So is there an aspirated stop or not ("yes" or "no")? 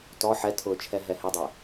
yes